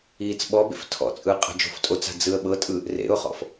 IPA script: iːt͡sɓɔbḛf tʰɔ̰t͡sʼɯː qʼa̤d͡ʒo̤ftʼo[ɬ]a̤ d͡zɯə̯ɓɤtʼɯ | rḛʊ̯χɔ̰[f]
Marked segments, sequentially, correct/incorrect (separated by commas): incorrect, correct